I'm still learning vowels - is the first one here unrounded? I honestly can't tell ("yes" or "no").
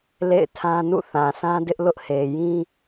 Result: yes